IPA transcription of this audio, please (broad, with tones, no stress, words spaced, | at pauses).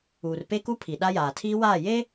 uː˨rpe˦ku˦ pʰi˨ɗa˦jaː˨ tʰiː˦waː˦˨ jeː˦